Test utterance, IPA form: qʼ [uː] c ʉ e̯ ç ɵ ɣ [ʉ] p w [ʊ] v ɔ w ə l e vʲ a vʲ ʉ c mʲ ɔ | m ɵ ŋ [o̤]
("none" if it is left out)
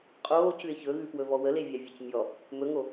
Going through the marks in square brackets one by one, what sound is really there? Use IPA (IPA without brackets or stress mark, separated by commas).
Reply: oː, ʉ, ɵ, o